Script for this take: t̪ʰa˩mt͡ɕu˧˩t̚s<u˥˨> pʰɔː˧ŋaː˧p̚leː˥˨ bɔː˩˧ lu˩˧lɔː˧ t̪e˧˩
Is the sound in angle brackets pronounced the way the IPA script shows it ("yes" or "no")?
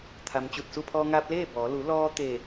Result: yes